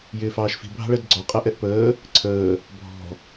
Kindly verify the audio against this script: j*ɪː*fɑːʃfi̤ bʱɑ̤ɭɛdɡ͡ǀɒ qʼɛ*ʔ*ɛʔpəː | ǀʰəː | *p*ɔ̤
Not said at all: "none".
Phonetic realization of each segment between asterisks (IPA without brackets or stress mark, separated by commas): ɪː, ʔ, bʱ